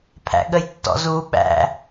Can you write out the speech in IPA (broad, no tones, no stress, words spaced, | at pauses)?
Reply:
pʰæ̰ɠəjtːɔ̰zu ɓæ̰